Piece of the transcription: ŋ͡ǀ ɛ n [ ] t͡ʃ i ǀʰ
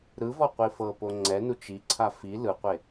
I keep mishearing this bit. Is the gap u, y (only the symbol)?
u